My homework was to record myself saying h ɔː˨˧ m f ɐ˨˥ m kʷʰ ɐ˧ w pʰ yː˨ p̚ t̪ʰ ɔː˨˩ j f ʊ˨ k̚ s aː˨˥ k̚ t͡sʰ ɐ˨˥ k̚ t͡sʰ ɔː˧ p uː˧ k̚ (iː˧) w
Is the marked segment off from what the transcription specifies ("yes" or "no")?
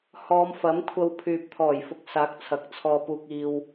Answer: no